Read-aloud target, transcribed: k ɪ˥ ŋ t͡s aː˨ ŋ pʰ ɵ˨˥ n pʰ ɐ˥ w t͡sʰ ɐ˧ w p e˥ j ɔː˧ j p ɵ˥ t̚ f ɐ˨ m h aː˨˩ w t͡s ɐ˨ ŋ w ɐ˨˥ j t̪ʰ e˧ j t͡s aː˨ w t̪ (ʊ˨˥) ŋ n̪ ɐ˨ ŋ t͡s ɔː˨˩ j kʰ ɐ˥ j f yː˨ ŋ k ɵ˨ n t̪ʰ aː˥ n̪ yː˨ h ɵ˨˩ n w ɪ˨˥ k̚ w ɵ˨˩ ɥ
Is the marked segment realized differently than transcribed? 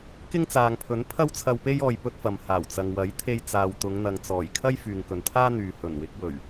yes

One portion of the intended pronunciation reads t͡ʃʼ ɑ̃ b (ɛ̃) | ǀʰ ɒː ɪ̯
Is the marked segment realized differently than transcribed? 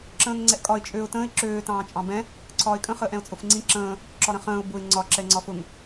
no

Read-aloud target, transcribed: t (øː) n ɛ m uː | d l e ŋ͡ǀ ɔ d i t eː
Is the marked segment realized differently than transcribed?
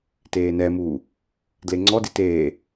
yes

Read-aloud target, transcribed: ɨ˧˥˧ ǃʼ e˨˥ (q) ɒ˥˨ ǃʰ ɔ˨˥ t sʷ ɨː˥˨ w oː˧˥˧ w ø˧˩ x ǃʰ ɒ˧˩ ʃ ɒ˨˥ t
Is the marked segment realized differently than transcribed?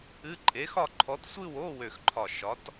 yes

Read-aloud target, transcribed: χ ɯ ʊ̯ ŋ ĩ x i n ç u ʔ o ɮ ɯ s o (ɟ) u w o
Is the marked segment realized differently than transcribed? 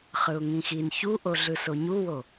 yes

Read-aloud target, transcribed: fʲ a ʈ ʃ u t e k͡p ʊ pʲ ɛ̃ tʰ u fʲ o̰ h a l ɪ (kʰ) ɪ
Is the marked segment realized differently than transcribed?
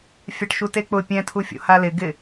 yes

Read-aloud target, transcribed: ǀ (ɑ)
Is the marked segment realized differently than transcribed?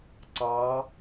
no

